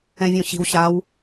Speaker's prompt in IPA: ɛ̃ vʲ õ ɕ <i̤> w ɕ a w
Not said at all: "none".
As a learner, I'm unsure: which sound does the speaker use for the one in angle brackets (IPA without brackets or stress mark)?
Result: i̤